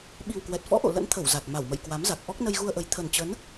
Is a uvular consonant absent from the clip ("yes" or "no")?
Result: yes